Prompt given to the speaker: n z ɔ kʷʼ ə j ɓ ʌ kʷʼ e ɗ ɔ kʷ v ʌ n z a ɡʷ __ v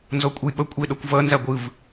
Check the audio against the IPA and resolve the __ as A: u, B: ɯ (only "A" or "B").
B